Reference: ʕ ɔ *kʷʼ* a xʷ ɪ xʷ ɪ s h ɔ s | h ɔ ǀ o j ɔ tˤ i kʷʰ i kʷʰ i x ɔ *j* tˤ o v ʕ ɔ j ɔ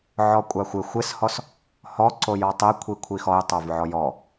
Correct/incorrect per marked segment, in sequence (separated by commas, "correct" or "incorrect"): correct, correct